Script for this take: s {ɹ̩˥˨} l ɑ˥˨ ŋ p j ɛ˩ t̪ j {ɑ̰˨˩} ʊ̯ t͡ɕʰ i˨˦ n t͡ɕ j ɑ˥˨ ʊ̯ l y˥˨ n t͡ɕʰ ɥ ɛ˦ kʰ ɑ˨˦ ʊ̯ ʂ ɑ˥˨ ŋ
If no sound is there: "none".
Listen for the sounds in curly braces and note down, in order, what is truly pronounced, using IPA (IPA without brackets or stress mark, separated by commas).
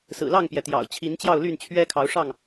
ɹ̩˨˩, ɑ̰˨˩